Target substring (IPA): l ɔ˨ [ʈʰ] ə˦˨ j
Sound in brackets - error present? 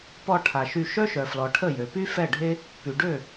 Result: no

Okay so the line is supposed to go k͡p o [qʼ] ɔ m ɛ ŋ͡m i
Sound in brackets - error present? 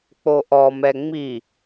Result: yes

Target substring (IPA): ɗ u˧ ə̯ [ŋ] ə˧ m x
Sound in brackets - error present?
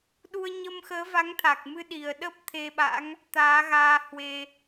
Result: yes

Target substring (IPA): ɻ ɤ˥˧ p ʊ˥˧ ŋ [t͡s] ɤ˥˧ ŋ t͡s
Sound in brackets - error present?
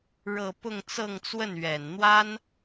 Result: no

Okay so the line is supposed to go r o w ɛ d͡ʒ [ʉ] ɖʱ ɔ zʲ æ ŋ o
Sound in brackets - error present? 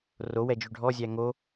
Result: no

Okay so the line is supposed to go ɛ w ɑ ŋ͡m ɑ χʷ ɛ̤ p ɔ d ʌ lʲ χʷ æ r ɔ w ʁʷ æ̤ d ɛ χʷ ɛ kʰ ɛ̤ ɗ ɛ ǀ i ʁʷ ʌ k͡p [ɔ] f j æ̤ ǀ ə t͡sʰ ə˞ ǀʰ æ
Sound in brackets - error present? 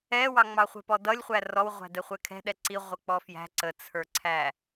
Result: no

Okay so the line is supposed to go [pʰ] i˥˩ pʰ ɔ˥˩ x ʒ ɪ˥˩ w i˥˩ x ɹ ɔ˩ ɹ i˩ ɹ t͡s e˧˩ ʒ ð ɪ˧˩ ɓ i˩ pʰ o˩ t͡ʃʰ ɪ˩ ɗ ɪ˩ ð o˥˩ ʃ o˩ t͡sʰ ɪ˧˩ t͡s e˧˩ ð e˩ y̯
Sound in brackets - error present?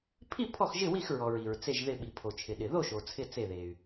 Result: no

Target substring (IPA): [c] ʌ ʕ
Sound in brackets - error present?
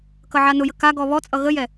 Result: yes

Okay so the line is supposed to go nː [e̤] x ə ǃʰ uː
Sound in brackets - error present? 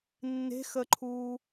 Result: no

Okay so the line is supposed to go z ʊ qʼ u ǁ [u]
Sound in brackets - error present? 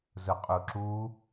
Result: no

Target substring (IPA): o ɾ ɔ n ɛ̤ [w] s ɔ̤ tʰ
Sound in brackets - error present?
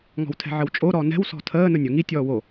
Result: no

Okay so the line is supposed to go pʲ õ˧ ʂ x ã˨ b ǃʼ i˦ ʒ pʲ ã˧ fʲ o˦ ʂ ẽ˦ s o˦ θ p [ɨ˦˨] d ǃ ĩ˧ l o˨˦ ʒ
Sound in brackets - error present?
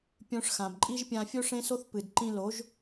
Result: yes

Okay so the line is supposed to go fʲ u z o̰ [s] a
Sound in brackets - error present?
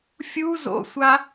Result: yes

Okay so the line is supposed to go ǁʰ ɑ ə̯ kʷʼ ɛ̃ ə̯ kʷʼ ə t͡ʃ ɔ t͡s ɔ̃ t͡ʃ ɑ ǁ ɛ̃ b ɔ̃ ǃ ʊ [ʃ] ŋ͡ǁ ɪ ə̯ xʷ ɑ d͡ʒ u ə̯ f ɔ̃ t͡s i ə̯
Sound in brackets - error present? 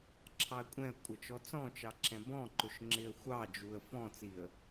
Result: no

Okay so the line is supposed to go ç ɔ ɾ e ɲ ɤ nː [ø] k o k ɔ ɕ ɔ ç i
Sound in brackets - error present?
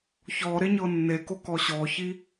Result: yes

